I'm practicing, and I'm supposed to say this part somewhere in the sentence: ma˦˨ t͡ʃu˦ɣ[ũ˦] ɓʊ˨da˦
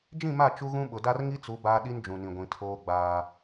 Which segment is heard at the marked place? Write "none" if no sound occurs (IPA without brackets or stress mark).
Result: ũ˦